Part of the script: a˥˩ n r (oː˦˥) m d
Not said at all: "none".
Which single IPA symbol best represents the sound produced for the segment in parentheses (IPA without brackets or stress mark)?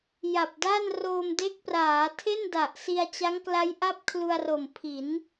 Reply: oː˧